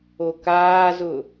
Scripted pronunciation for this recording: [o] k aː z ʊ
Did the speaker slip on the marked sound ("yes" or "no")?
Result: no